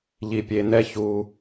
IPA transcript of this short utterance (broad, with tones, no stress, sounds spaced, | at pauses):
ʎ i˧ pʲ e˧ n ɛ˦ ç u˧